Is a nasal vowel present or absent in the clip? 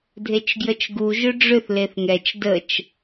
absent